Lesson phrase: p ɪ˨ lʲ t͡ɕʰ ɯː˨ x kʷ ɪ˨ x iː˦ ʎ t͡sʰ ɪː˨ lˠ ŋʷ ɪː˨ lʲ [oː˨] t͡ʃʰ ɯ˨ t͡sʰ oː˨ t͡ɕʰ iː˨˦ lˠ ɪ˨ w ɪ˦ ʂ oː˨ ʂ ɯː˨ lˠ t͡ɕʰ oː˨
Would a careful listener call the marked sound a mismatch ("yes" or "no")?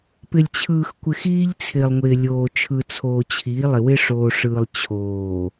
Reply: no